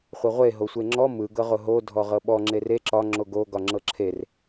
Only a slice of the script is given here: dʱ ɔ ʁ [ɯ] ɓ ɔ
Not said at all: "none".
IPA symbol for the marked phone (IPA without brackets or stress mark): ɤ